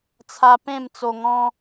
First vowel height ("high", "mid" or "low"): low